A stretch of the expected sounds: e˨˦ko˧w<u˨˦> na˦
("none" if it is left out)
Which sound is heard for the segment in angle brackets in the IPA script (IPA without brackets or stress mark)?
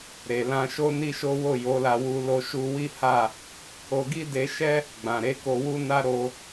u˦